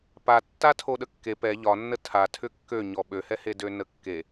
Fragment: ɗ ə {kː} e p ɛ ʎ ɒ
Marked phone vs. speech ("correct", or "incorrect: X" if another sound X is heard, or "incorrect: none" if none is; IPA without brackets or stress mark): correct